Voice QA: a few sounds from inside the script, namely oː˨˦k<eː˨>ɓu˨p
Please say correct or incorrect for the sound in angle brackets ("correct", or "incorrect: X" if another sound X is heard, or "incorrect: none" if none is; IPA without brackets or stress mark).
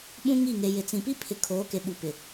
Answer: incorrect: e˨